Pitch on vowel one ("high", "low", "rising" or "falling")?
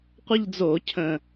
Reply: falling